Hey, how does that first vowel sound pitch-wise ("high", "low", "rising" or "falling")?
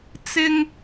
high